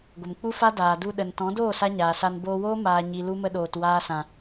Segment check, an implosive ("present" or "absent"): present